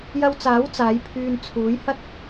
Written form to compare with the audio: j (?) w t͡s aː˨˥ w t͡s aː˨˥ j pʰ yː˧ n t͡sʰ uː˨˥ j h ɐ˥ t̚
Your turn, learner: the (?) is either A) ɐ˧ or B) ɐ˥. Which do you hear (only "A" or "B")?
A